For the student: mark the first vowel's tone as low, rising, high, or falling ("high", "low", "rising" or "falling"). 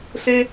high